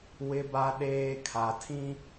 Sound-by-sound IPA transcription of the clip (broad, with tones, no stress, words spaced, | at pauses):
wɪ˦ba˦ ɗeː˦ kʰa˨tʰĩ˦